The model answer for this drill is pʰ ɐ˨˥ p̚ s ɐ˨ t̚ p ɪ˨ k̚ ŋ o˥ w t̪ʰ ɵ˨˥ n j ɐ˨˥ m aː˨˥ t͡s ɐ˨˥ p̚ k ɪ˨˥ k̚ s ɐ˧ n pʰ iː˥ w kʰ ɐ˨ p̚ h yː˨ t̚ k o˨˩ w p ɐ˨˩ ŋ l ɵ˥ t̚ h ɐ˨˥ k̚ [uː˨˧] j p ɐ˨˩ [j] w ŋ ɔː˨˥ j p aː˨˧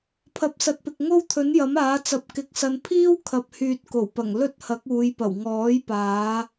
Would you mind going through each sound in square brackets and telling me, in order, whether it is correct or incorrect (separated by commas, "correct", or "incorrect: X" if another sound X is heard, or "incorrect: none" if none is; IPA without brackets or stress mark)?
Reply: correct, incorrect: none